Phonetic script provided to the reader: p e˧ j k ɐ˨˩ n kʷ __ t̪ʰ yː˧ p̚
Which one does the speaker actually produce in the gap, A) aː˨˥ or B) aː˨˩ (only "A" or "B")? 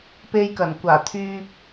B